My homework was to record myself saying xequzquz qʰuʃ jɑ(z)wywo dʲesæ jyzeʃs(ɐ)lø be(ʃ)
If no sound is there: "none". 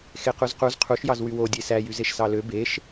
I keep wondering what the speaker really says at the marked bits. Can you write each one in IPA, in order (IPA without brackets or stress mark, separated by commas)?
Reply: z, ɑ, ʃ